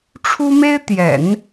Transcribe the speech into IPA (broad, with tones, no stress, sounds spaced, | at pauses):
ʈ͡ʂʰ u˥ m e˥ ɪ̯ t̪ j ɛ̰˨˩˦ n